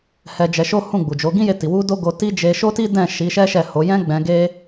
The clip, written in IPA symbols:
hɛ˧d͡ʒɛ˧ʃo˦ hũ˦˨ɡ͡bu˨d͡ʒo˨˦ ɡĩ˦je˧ ti˨wu˧ do˦ ɡo˧ti˦d͡ʒe˧ ʃo˦ti˦dɛ̃˦˨ ʃi˨˦ʃɛ˦ʃɛ˦˨ho˨˦ jɛ̃˦ɡ͡bɛ̃˧ɡe˦

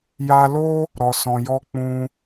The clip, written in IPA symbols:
ja˧lo˦ | ɾɔ˨sɔ̃˨jɔ˧ k͡pũ˧

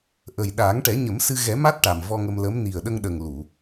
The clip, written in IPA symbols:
ʔə˨˩jɗaː˨˩˦ŋ ʈɛ˨˩˦ɲə˨˩˦msɨ˧ ɣɛ˨˩˦ma˦˥t̚ ʈa˨˩mvɔ˧ŋə˧m lə˧˥m ni˨˩ə̯ɗə˧ŋɗə˨˩ŋ lu˨˩˨

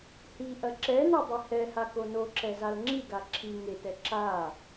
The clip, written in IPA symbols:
hiʔɐ ǁɛnodˤe hɛhako noǁɛzal ŋ͡ǁiɡa ǁʰi ŋetɛ ǁa

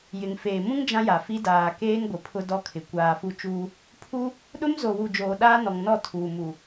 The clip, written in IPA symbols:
jɪ˨ŋfeː˨ mũ˦ŋ d͡ʒã˦ja˨fi˦ daː˨keː˦ŋ ɡʷɪ˨pʰʊ˦dɔ˦kʰɪ˨ kʷaː˨ fu˦t͡ʃuː˦ | pʰu˦ | ɗʊ˦mzo˨wu˨ d͡ʒoː˨ɗaː˦nɔ˨ŋnɔ˦˨ tʰuː˨mu˨

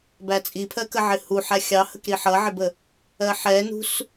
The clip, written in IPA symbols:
bæt͡sʼipʰɜkə ʕɪhuħæ xʲɑhəkɾi ħʌʕɪbə | ɜħɛnṳs

